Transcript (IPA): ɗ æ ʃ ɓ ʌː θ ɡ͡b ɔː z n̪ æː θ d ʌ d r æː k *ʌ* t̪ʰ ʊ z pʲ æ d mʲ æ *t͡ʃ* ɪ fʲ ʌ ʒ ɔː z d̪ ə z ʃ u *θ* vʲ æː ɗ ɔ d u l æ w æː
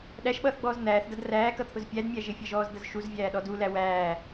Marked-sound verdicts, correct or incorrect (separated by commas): correct, incorrect, incorrect